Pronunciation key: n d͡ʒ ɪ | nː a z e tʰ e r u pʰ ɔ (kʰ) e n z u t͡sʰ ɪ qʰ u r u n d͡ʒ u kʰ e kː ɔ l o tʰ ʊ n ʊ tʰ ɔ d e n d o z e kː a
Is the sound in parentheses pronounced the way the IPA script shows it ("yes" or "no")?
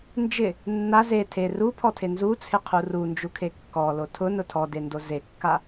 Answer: no